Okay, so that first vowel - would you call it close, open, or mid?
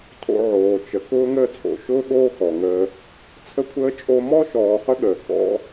mid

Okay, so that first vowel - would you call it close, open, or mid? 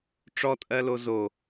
mid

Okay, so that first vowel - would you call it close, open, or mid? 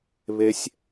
mid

